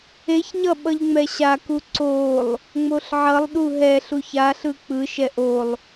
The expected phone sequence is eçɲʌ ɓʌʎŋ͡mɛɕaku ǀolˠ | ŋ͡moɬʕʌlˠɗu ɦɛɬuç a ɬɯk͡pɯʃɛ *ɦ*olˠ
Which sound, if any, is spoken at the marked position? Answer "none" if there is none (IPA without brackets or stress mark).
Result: ʔ